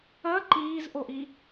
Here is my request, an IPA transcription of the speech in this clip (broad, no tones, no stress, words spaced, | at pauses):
ɐ ǃiːzʔoʔi